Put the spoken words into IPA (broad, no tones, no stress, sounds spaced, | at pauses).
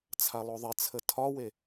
t͡sʰ a lˠ o ðˤ ɪ t͡sʰ ə tʰ ɒ w e